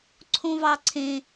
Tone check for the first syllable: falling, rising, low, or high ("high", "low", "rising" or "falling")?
high